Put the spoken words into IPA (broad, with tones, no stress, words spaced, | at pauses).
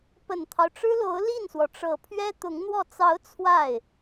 pə˨˩nt̪ʰɑ˦ʊ̯ʈ͡ʂɻ̩˥lo˧˥ʊ̯ li˥˩nswɔ˩ʈ͡ʂɤ˨˩ pʰɥɛ˥t̪ʊ˧˥ŋn̪wɔ˥˩ t͡sɑ˧˥ʊ̯ t͡sʰwa˥˩ɪ̯